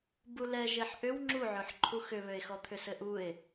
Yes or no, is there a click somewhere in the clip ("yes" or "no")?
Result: yes